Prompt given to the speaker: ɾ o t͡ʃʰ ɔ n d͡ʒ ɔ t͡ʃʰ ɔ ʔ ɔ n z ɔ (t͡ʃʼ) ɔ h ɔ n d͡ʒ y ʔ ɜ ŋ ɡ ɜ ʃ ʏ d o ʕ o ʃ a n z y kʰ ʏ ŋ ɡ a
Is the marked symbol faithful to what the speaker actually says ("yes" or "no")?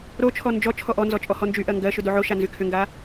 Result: yes